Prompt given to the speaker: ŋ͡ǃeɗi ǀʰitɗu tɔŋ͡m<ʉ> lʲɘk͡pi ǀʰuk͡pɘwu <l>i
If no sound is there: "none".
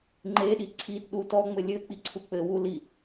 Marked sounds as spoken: ɘ, l

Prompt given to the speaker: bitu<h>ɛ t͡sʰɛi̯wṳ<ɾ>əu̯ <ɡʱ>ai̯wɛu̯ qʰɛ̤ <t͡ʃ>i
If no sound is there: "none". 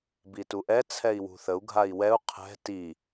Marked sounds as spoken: ʔ, θ, ɡʱ, t

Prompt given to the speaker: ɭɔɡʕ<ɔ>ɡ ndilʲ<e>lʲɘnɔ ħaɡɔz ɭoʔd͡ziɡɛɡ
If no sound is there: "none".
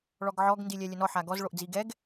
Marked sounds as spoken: ɔ, ɛ

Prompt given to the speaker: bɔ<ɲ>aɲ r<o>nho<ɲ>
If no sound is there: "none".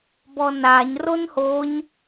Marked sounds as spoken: n, o, ɲ

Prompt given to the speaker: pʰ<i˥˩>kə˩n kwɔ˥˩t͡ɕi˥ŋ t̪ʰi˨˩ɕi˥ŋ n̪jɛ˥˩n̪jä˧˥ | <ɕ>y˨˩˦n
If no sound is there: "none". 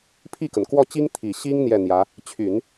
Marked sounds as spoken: i˥˩, t͡ɕʰ

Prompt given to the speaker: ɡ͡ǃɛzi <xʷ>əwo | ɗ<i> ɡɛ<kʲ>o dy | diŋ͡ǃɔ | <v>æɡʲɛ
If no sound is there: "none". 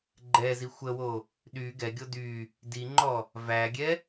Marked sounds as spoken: xʷ, y, ɡʲ, v

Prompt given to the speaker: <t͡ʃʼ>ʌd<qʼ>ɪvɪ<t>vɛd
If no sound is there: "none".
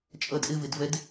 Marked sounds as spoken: t͡ʃʼ, ʔ, d

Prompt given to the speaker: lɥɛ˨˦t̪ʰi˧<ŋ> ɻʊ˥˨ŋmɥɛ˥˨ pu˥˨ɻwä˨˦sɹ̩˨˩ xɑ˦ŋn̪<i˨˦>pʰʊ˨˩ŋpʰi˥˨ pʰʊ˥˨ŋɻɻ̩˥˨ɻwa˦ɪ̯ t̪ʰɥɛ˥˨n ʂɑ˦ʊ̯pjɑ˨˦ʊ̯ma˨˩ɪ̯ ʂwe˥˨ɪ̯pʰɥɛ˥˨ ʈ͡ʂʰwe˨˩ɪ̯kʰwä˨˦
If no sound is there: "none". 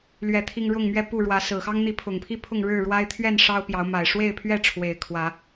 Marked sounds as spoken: ŋ, i˨˦

